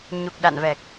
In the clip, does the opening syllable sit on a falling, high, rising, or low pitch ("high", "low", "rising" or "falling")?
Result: low